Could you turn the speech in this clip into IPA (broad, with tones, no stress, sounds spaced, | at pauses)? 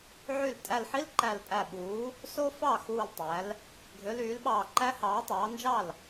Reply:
ʕ y˥˩ l tʼ æ˧˩ l ħ i˦˥ l ǃ æ˧˩ l pʼ æ˧˩ ɓ uː˩˥ | s o˦˥ f ɑ˥˩ x uː˧˩ l tˤ æ˩˥ l | ɡʱ ø˩˥ l yː˩˥ l ɓ ɑː˧˩ ǃ æ˦˥ h ɑː˩˥ tˤ ɑː˩˥ n d͡ʒ ɑ˥˩ l